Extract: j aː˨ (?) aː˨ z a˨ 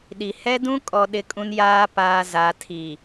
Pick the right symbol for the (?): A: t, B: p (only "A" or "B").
B